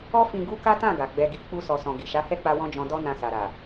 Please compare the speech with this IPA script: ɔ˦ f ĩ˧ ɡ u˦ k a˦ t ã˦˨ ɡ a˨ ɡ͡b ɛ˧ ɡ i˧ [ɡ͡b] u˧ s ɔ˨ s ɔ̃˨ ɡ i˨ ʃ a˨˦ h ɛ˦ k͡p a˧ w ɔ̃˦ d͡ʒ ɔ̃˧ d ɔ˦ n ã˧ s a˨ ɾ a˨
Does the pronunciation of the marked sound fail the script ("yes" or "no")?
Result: yes